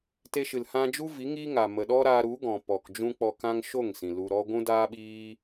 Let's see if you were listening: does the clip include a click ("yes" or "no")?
no